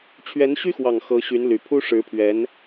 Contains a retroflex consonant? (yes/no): yes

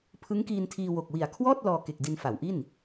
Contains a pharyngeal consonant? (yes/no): no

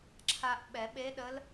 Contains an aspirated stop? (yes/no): yes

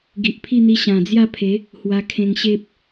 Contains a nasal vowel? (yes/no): yes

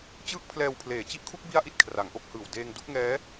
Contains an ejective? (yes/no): no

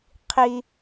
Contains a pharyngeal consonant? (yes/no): no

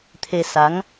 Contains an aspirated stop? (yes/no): yes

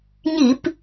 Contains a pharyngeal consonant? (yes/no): no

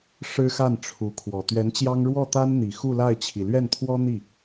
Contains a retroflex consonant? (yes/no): yes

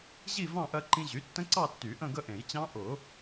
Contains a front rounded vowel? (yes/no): yes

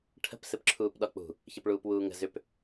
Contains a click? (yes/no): yes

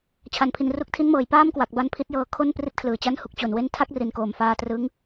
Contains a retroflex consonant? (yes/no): no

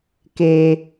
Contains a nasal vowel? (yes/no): no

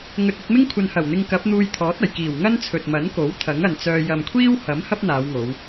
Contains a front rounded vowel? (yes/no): yes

